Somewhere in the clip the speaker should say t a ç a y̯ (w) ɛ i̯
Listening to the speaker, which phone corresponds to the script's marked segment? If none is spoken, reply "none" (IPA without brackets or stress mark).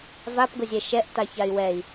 w